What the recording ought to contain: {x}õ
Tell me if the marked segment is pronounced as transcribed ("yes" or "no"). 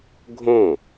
no